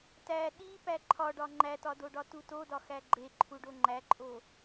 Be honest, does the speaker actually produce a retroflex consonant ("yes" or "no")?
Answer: yes